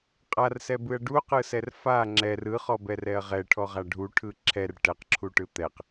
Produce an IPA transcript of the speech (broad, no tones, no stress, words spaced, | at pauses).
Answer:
qʼarsɛbɯɐ̯ ɖuqɯsɛr fa ŋ͡ǁɛr ɯχɔbɛrɛɐ̯ ʁɛʈʰɔʁa ɖʱuʈʰɯ ǁʰɛr ʈɛqǁʰuʈɯ t̪ɛq